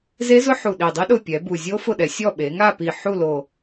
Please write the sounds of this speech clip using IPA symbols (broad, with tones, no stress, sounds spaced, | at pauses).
z e˦˥ z ʊ˦˥ ħ u˨˩ ɗ i˨˩ dˤ i˦˥ ɗ ʊ˦˨ pʲ ɛ˩˧ b u˨˩ zʲ o˦˥ f ʊ˦˨ ɗ ɛ˩˧ sʲ ɔ˦˨ ɓ e˩˧ ŋ a˦˨ p i˨˩ ħ u˦˨ l o˨˩